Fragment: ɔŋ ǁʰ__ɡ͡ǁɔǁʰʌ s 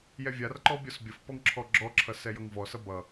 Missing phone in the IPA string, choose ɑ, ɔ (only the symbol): ɔ